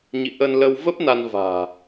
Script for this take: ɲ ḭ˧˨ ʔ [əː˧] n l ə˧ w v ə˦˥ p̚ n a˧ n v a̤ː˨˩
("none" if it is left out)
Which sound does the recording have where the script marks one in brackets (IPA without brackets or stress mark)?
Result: ə˧